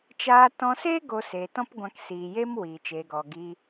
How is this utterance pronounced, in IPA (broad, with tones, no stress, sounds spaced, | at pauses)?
t͡ʃ aː˧ t ɔ̃˧ s eː˦ ɡ o˧ s eː˨ t ɔ̃˦ p ɡʷ ã˧ k s iː˨ j eː˦ m w iː˨ t͡ʃ eː˨ ɡ ɔ˨ ɡ iː˧